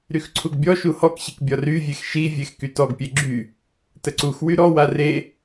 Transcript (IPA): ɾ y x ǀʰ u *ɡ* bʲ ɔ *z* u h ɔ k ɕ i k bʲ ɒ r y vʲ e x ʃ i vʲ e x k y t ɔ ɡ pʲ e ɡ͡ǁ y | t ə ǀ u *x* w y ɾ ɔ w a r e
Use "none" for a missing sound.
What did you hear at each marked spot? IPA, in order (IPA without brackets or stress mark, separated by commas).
ɡ, ʃ, x